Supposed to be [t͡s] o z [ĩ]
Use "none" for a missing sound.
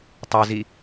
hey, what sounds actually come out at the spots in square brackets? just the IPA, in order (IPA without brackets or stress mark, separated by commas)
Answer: tˤ, i